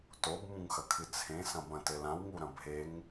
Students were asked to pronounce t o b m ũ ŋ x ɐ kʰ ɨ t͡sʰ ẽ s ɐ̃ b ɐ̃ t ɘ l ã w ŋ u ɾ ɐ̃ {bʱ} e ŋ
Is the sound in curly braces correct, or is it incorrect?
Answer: correct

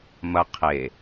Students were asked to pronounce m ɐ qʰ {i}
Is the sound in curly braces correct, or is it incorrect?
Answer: incorrect: e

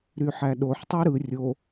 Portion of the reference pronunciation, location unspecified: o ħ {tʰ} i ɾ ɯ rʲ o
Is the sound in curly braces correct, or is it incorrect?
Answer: incorrect: tˤ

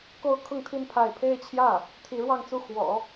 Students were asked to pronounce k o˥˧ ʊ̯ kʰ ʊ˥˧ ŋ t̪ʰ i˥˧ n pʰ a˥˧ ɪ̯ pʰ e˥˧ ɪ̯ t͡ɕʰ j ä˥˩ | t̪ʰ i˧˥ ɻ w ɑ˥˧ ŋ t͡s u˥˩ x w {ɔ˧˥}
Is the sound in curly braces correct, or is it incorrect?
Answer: incorrect: ɔ̰˨˩˦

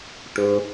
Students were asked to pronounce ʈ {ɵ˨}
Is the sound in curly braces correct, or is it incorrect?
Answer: correct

